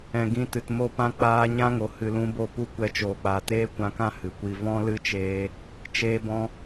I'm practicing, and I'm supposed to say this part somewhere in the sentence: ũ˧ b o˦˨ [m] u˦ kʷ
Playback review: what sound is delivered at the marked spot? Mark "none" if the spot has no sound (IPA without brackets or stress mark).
p